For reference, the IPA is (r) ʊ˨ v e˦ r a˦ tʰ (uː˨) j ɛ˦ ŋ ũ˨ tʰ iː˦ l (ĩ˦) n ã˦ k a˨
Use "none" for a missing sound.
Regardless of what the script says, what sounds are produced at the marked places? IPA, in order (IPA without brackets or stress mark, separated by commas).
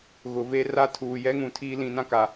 ɣ, uː˨, ĩ˨˦